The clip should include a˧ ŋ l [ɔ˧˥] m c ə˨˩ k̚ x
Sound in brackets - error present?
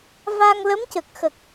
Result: yes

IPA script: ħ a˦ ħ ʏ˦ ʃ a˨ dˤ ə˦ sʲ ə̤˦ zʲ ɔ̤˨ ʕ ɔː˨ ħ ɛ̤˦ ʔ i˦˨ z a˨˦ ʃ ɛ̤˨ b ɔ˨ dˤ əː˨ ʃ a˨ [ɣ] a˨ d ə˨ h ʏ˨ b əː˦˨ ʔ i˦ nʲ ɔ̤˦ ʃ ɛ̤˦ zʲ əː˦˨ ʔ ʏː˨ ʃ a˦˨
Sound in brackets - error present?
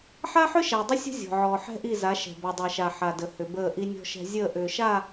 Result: yes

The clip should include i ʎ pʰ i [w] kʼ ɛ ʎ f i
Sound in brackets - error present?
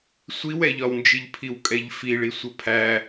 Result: no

